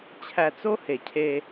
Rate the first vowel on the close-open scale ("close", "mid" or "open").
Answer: open